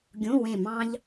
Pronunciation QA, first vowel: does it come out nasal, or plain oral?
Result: nasal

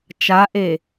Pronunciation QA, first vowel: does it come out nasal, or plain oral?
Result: oral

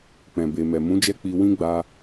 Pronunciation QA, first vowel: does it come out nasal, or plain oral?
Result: nasal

